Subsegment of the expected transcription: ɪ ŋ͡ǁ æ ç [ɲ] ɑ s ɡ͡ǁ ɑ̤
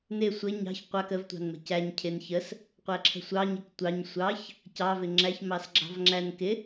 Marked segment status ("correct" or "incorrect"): incorrect